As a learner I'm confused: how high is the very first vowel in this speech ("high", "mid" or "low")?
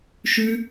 high